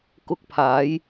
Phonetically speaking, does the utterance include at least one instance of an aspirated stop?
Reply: yes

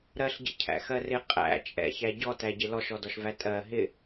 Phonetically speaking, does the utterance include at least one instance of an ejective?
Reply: yes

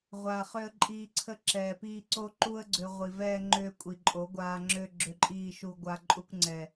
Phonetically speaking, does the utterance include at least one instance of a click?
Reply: yes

